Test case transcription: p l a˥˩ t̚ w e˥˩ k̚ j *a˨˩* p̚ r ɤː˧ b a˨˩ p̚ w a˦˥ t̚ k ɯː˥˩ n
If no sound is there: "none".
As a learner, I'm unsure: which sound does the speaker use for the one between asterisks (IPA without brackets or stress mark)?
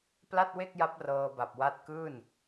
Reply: a˦˥